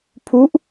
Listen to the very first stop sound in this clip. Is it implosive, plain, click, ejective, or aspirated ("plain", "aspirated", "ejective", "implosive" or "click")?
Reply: aspirated